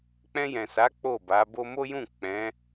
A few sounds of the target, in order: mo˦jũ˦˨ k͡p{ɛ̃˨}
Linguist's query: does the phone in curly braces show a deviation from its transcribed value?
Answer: yes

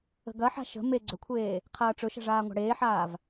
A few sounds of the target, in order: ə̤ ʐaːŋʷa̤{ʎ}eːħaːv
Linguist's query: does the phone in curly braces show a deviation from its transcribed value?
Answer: yes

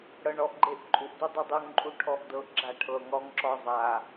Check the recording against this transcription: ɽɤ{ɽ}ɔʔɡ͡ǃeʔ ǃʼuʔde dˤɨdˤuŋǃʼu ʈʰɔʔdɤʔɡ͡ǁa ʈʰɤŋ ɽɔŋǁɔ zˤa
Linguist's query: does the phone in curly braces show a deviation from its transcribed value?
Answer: yes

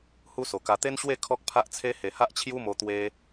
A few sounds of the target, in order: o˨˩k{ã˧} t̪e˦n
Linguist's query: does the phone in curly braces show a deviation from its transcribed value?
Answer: yes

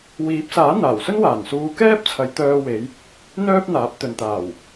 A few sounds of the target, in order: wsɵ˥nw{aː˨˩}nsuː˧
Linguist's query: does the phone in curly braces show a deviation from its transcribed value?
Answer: no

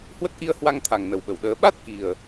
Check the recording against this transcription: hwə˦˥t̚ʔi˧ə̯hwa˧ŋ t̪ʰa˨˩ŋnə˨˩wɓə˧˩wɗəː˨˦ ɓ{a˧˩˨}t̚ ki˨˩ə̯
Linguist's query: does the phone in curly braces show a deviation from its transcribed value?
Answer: yes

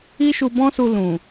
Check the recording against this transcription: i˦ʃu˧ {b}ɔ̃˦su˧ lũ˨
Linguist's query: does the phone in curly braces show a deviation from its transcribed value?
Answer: no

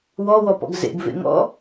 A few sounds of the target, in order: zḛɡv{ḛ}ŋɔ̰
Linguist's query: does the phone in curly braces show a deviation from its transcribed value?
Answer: no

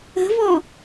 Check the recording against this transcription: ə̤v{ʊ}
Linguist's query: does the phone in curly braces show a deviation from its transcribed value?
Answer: yes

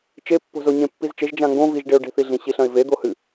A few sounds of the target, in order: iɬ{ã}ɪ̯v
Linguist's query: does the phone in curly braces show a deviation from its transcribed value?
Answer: yes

